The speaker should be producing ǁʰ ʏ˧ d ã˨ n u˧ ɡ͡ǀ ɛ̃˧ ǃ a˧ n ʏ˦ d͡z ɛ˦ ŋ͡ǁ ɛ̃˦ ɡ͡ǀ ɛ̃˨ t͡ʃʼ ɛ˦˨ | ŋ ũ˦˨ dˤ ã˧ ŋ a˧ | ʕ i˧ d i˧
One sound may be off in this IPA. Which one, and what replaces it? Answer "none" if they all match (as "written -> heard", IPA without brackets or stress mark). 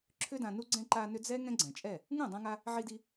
ŋ͡ǁ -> ŋ